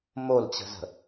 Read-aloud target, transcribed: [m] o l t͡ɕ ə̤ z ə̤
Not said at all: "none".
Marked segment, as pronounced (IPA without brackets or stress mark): m